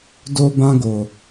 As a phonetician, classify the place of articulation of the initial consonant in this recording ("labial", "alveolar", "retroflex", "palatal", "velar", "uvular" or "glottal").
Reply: alveolar